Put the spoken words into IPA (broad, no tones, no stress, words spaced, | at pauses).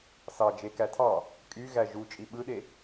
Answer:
sɑ d͡ʒekætʰɑ | kʼyɣæ ʒu t͡ʃʼiɓɯɗe